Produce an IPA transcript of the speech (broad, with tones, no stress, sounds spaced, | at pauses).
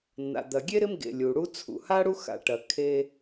nː a̰˩ d̪ ɐ˩ ɡʲ e˥ ɾ ɪ˦ m ɡ ḛ˩ lʲ u˩ ɽ u˦ t͡sʰ ṵ˩ h a˥ ɽ u˦ x a̰˨ ʈ ɐ˩ kʰ e˦